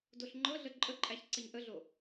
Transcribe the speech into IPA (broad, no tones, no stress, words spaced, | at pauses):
doɬŋ͡ǃɤɮə ǃʼəǃʼæç ǀəɲʔəɮo